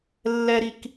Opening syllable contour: high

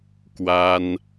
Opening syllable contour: high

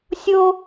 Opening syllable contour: high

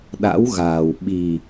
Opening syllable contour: rising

